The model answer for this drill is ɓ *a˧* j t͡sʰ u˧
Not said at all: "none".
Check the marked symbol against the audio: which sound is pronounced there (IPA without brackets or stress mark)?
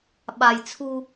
a˧